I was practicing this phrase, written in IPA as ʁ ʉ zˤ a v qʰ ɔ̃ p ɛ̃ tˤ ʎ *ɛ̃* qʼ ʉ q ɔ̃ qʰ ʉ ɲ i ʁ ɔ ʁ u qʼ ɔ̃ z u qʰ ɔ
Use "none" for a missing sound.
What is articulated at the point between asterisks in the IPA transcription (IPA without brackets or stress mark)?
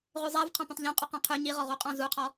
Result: ɛ̃